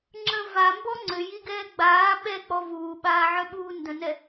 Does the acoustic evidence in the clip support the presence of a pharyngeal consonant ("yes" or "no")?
yes